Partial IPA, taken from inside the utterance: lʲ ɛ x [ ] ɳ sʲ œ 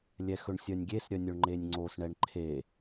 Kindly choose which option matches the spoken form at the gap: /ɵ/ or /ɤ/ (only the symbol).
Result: ɵ